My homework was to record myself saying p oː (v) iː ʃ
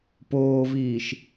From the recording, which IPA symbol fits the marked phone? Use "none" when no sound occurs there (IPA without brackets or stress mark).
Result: v